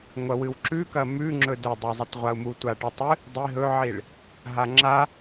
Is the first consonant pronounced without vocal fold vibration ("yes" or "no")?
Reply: no